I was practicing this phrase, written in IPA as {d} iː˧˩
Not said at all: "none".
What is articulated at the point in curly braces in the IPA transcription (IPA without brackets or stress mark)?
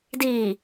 d